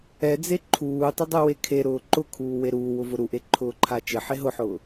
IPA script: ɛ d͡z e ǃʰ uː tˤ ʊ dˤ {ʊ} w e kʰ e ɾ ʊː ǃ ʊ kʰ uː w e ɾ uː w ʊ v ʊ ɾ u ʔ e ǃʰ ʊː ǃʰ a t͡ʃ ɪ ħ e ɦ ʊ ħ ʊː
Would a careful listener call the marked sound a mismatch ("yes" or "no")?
yes